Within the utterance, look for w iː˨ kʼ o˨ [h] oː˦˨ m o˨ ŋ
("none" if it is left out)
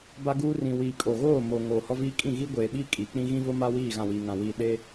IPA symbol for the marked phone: ɣ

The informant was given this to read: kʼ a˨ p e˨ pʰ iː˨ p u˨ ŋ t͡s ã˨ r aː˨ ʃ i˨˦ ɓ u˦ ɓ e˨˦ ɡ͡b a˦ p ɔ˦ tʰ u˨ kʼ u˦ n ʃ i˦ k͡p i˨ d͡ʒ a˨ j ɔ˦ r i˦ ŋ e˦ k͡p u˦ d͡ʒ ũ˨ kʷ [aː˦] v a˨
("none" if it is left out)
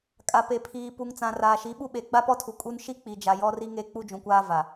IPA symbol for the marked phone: aː˦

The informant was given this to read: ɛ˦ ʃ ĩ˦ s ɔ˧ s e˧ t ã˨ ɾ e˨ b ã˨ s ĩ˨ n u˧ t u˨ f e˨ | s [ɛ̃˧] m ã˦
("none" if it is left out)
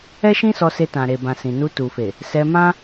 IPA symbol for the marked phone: ɛ˧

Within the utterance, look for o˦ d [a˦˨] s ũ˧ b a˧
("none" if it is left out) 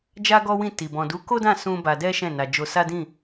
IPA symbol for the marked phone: ã˦˨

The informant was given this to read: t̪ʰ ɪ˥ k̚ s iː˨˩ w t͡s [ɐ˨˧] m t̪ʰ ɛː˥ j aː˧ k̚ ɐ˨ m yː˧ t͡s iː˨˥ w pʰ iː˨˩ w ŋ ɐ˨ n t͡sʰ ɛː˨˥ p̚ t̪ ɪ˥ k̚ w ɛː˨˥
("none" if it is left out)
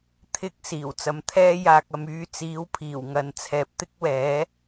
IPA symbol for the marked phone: ɐ˨˧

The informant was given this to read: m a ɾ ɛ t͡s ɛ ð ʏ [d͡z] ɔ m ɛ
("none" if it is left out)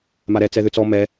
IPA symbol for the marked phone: t͡s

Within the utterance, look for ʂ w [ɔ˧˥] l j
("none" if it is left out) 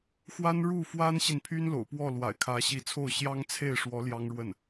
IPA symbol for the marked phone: ɔ˧˥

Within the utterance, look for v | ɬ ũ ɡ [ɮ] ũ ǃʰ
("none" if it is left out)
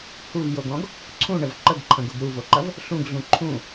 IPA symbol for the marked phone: ɮ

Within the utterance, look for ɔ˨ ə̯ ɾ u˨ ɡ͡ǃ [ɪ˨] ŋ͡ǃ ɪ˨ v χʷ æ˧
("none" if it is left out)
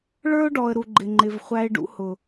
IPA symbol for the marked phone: ɪ˨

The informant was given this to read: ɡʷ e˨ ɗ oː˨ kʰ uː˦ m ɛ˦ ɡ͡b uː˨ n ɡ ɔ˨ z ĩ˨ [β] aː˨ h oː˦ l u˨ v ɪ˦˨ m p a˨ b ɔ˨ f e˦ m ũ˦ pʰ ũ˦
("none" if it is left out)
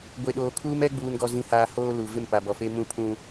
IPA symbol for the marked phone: h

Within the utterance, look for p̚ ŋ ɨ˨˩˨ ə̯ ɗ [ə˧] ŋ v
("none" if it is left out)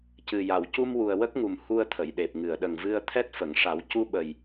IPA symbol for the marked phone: ə˨˩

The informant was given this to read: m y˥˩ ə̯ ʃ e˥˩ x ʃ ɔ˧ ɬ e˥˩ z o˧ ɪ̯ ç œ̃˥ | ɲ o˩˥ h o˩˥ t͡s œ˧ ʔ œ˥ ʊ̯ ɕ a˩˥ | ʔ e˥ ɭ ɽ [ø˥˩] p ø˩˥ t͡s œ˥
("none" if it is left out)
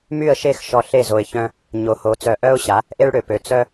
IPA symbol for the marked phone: ø˩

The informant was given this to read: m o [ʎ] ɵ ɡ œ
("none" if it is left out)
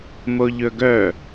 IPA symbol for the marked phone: ʎ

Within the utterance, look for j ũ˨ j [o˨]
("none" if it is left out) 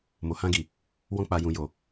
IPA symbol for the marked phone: o˨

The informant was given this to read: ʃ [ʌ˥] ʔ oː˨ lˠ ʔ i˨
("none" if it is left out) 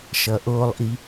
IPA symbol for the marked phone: ʌ˩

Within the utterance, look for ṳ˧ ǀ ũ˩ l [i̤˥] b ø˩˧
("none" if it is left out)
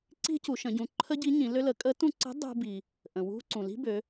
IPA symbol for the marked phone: i̤˥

